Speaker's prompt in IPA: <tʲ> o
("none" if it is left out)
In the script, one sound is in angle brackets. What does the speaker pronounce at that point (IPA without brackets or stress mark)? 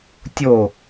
tʲ